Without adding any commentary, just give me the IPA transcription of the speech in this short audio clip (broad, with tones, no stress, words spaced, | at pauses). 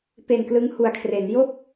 pe˨˩nklɯ˦˥ŋhu˨˩a̯kʰre˩˦n jo˥˩k̚